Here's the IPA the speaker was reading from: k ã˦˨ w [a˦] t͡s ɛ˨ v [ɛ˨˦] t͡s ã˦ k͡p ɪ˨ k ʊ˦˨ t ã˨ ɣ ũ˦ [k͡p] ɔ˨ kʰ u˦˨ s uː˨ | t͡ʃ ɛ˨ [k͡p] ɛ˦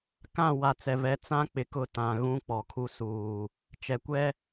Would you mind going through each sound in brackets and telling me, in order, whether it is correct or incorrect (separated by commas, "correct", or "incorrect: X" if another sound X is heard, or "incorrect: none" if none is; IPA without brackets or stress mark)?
incorrect: a˨, correct, correct, incorrect: kʷ